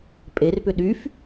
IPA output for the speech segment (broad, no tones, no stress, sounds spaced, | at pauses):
pʼ e r p ʏ ɗ y f